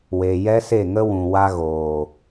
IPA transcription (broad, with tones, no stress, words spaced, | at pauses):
we˧ jɛ˦se˦˨ŋə˦wũ˨ wa˦ɣoː˨